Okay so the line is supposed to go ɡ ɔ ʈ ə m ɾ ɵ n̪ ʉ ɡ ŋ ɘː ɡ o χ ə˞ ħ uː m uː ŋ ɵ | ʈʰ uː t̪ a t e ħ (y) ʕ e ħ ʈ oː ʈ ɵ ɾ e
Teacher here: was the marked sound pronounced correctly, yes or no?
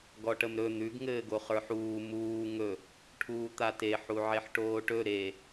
no